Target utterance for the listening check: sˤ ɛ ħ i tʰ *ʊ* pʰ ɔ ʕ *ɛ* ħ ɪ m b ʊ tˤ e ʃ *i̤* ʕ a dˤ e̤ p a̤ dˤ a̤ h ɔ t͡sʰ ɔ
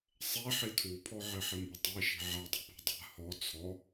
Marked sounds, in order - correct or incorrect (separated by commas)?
incorrect, incorrect, correct